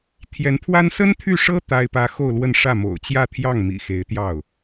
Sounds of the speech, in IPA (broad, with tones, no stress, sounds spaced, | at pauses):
t̪ʰ j ɛ˧˥ n pʰ w a˥ n s ə˥ n t̪ʰ y˥˩ ʂ ɤ˥ t̪ a˥ ɪ̯ p ä˥ x o˥˧ ʊ̯ l w ə˥˧ n ʂ ä˥˩ m o̰˨˩ ʊ̯ t͡ɕ j ä˥˧ t̪ʰ j ɑ˥˩ ŋ m ḭ˨˩ x e˧˥ ɪ̯ t̪ j ɑ˥˩ ʊ̯